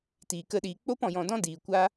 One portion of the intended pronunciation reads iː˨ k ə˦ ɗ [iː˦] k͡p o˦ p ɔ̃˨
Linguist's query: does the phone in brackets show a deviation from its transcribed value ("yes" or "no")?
yes